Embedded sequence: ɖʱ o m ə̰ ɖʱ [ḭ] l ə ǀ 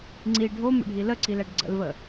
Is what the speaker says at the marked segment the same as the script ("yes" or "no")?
no